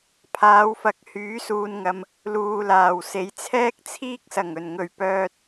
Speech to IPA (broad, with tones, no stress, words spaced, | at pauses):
pʰaː˨˧wfɐ˨k̚ hyː˨˥suː˨nŋɐ˨m | luː˨laː˨˩wse˨˧j t͡sʰɛː˥k̚t͡sʰiː˥k̚sɐ˨˩ŋ ɵ˨˩nŋɵ˨˩ɥpœː˨t̚